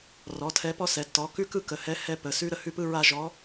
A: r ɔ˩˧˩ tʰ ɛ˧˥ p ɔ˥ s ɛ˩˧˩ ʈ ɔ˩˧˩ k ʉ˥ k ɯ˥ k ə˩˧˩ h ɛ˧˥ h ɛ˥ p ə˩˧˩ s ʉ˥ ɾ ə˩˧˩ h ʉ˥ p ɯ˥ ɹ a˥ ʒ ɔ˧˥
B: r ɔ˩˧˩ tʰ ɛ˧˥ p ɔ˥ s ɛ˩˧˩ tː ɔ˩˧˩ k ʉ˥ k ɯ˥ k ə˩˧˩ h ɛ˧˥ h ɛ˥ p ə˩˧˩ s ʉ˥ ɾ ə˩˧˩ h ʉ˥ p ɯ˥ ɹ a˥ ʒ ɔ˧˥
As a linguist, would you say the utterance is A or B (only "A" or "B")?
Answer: B